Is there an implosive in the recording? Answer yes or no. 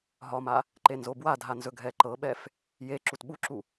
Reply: yes